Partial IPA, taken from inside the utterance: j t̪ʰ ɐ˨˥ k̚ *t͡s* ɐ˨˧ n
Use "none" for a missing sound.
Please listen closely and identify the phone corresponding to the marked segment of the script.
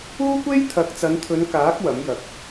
t͡s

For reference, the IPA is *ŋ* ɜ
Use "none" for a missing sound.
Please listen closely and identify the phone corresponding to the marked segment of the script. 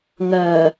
ŋ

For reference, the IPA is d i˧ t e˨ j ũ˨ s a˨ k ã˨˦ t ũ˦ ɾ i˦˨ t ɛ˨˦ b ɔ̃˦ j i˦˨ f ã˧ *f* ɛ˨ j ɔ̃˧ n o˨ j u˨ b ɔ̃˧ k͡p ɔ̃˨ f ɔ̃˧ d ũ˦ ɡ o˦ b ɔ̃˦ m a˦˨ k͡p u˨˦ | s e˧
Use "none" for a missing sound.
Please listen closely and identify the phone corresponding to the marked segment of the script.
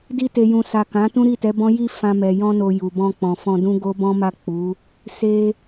m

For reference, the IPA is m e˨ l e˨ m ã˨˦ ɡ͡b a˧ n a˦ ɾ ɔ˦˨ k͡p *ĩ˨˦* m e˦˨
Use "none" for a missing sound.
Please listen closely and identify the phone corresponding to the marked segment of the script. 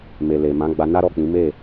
ĩ˨˦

